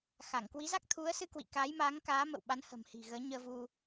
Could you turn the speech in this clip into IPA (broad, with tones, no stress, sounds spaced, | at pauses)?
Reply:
x a˧˩ ŋ k w i˨˦ z a˦˥ k̚ t̪ʰ u˨˦ ə̯ s ɨ˧ k w ḭ˧˨ k aː˨˦ j m aː˨˦ ŋ k aː˨˦ m ə̰˧˨ w ɓ a˨˦ n h ə̤˨˩ m h i̤˨˩ ɣ əː˨˦ ɲ əː˧ v u˧